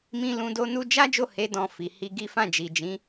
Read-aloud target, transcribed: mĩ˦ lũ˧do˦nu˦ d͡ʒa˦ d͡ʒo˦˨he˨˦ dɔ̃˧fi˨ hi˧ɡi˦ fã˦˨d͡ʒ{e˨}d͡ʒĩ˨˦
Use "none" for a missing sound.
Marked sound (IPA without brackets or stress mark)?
i˨